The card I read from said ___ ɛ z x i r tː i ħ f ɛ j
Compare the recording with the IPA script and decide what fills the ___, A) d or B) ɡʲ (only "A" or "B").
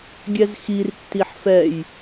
B